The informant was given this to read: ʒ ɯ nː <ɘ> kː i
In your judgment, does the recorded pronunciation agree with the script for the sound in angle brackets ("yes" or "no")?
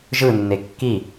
no